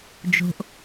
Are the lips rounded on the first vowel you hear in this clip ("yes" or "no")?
yes